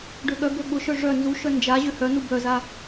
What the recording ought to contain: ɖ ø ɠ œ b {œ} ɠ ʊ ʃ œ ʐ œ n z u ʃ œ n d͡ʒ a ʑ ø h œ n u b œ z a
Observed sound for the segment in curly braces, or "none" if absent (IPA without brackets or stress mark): ø